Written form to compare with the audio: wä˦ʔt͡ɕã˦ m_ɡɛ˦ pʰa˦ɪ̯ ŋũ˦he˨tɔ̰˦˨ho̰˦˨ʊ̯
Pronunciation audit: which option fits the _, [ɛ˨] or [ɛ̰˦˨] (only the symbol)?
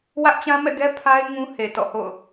ɛ̰˦˨